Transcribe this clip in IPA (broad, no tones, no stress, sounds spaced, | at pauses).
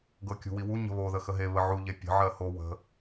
ɡ ɤ kʲ ṳ w i w u ɲ ə̤ β o ð ə x ə ɦ e β ə ʕ u ʎ e pʲ ə̤ ʕ ɜ h o w ə̤